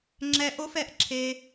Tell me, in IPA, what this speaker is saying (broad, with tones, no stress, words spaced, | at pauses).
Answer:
ŋ͡ǁɛ˧ ʔo˦fɛ˧ʔ ǁʰe˧